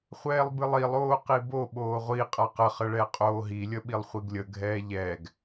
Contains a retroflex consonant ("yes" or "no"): yes